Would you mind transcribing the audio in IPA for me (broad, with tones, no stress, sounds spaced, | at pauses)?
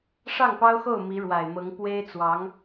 ʂ ɑ˥˩ ŋ p ɑ˥ ʊ̯ x o˥˩ ʊ̯ m i˧˥ ɻ w a˨˩ ɪ̯ m ɤ˧˥ ŋ p w e˥ ɪ̯ t͡s w ɑ˧˥ ŋ